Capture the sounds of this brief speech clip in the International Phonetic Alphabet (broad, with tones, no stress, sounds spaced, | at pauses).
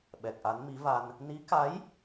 ɓ ɛ˨˩ k̚ ʔ a˨˦ n m i˨˦ v a˧ n | n i˨˦ k a˨˦ j